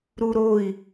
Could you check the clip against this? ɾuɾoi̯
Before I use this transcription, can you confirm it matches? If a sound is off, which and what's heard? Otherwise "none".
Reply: none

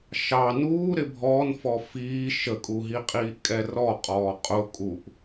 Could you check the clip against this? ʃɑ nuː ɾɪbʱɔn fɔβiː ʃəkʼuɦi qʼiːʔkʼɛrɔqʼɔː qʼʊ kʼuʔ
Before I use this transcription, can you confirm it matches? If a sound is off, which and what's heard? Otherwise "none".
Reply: β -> f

